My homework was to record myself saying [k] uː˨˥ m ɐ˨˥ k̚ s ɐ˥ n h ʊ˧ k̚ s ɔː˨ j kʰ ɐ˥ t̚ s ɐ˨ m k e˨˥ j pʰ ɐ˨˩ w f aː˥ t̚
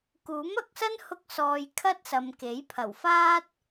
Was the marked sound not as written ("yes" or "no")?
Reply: no